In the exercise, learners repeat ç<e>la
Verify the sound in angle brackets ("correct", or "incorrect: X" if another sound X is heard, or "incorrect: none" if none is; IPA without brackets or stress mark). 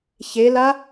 correct